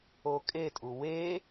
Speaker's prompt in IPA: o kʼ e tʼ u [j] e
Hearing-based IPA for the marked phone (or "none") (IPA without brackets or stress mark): w